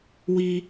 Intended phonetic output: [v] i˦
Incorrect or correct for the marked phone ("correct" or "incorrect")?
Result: incorrect